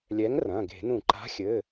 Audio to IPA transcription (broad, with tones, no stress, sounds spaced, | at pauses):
lʲ ɛ˨˥ ŋ r ɐ̃˩˧˩ ɡ e̤˧˩˧ n ũ˧˩˧ ǃ a̤˨˥ xʲ ɘː˩˧˩